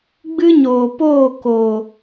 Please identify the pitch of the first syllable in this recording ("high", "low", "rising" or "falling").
high